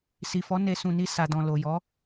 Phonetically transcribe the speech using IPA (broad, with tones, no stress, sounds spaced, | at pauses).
s i˨ f ɔ˨˦ n e˧ s ũ˨ n i˧ s a˨ d ɔ̃˨ l o˨ j ɔ˨˦